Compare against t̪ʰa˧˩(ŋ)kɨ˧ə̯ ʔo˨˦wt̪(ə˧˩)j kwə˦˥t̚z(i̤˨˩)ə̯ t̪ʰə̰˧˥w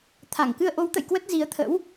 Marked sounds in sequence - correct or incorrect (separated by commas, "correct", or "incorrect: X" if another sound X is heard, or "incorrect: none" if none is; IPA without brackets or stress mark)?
correct, incorrect: ə̰˧˨, incorrect: i˨˦